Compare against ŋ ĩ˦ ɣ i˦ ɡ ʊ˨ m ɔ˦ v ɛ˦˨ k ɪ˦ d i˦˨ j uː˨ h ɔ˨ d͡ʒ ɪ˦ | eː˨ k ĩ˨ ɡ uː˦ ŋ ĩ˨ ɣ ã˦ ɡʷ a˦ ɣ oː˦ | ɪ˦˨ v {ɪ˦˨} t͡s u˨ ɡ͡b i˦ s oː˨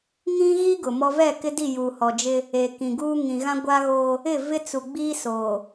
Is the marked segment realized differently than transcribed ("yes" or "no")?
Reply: yes